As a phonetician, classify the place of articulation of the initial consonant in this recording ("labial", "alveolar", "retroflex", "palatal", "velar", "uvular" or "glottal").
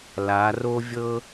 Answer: alveolar